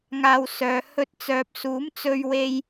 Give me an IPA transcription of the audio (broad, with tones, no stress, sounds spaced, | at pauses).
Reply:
ŋ aː˧ w s œː˨˧ h ɵ˧ t̚ t͡s œː˨ p̚ s uː˨˥ m t͡s ɵ˧ ɥ w e˧ j